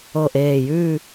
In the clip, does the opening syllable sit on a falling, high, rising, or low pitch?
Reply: low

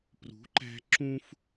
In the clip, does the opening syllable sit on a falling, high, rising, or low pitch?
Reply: rising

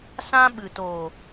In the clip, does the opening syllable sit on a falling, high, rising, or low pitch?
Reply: high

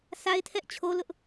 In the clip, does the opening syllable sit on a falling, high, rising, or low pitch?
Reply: high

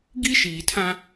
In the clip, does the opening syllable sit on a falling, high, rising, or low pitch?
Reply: high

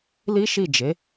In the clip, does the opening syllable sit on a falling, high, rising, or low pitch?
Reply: high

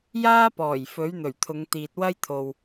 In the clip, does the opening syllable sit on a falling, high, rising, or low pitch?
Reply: high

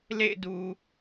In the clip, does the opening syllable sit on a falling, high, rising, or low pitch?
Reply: falling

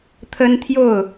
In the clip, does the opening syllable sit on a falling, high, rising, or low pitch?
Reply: high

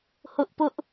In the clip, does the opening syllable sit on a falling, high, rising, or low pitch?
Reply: high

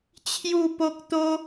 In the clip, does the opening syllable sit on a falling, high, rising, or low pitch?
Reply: falling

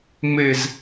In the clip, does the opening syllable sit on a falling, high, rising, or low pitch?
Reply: falling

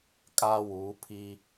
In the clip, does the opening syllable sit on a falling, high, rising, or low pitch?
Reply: high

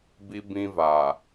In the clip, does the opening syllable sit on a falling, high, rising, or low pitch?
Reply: high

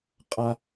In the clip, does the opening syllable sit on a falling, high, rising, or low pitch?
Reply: high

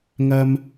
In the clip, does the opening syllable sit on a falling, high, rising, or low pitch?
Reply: high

